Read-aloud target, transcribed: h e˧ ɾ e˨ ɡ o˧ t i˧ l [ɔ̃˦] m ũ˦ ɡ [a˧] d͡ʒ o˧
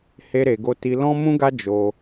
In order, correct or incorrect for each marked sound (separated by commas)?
correct, incorrect